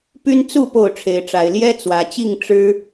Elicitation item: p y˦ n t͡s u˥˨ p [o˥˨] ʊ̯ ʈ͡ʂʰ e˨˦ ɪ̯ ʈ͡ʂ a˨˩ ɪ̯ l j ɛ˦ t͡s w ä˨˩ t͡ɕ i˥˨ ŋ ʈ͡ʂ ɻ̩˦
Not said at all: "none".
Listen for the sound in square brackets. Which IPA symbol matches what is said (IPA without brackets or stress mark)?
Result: o˥˨